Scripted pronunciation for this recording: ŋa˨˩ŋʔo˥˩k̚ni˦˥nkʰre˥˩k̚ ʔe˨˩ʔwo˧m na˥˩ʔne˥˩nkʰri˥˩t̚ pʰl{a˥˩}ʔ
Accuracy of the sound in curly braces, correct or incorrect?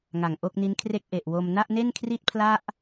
correct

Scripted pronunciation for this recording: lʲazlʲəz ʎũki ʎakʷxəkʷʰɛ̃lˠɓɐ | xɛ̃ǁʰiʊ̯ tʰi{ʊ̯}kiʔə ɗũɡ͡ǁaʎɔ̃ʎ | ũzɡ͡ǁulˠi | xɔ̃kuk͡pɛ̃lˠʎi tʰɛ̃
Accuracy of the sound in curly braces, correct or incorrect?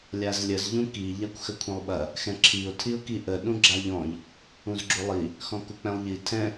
correct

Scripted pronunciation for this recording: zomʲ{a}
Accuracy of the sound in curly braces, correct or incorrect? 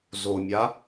correct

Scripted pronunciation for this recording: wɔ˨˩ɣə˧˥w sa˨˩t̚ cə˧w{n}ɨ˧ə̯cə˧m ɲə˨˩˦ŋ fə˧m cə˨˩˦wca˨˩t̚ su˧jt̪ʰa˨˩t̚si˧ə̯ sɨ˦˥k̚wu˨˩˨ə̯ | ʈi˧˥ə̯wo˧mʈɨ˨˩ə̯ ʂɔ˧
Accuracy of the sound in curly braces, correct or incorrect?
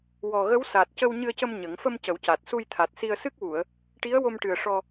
incorrect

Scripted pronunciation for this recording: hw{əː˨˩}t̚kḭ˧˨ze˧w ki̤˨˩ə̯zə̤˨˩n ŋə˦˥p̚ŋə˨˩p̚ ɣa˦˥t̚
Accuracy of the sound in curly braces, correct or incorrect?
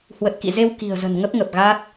incorrect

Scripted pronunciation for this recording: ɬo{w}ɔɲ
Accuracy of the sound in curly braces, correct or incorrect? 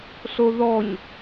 incorrect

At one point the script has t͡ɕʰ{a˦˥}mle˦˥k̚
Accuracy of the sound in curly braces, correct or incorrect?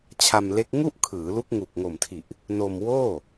incorrect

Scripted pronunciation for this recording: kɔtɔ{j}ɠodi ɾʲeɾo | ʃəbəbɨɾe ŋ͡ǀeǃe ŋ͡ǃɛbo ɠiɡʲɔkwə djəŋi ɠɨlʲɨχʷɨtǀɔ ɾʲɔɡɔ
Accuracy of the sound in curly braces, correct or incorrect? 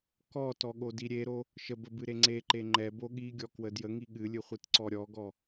incorrect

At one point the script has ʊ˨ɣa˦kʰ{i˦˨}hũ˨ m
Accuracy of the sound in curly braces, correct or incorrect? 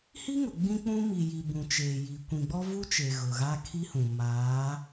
incorrect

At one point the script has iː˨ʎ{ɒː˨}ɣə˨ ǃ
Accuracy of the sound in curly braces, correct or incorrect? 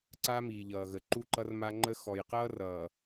incorrect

